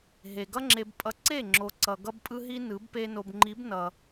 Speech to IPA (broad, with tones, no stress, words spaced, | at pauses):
ɦe˨ɡʌ˦ŋ͡ǁe˧b pʼʌ˧ǀe˦˨ ŋ͡ǁo˨ǀʌ˨ ɡʌ˦bpʼɯ˦ɦi˦ nɯ˨˦b pe˧no˨bŋ͡ǃi˨˦bnʌ˨